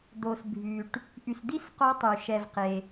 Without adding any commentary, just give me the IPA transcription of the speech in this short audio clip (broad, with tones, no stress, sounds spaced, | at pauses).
d̪ o˨ s bʱ y˨ ʈ | ʔ y˨ s d̪ i˦˥ s q o˦˥ tˤ y˨ ʃ ɛ˨ v q e˨